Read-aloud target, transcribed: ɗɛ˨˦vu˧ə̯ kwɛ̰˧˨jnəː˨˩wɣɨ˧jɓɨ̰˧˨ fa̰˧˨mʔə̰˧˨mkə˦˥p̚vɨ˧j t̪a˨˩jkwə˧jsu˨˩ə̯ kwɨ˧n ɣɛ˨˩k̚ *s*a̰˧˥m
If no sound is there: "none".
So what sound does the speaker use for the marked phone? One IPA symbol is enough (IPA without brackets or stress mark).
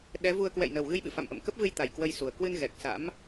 s